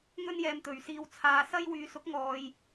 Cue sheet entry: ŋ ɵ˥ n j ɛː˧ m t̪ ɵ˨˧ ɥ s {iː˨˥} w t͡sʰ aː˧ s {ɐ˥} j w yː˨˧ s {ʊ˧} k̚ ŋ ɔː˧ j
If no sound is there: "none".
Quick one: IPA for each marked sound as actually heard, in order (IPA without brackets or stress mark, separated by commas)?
iː˧, ɐ˥, ʊ˨˥